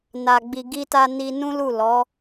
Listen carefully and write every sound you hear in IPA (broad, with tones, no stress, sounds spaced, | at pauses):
n a˨ ɡ͡b i˨ ɡ i˧ t a˧ n i˧ n ũ˦ l u˦˨ l ɔ˨˦